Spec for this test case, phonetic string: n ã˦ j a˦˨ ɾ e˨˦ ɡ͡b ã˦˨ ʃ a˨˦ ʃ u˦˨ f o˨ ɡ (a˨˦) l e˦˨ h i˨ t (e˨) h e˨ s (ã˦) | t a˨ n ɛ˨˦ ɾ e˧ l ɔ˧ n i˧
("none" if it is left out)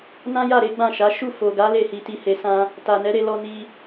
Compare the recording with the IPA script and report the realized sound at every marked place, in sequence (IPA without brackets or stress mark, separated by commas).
a˨˦, i˨, ã˧